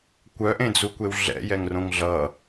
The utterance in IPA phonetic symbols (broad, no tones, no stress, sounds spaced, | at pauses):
kʷ œ ʔ ẽ d͡z u kʷ e w ɮ ɛ̰ j ɛ ŋ r õ ŋ ɮ ʌ